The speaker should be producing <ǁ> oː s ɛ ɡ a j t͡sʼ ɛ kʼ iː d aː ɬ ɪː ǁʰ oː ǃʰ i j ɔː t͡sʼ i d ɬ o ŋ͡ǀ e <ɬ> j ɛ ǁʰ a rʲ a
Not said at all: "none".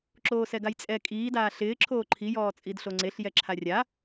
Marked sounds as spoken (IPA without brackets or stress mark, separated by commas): ǁ, ɬ